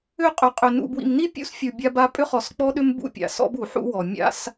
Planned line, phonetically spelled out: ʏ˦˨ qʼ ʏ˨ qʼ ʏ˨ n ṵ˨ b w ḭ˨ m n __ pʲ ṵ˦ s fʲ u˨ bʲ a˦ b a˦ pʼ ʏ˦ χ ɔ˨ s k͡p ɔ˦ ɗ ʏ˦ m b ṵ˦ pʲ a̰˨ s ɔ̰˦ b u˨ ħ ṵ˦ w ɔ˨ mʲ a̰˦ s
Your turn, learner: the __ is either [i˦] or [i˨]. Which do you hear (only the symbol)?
i˦